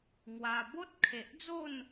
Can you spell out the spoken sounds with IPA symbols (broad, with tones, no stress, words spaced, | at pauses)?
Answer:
ŋwa˧ bo˦t̚kʰe˨ʔd͡zo˥˧n